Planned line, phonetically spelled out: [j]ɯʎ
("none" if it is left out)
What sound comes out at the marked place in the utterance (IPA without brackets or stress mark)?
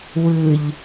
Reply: w